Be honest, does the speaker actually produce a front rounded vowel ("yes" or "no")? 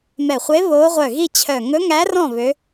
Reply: yes